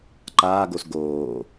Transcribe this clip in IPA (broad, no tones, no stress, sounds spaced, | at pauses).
ǃ aː ɡ o s ɡ oː